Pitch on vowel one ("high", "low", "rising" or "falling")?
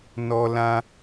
high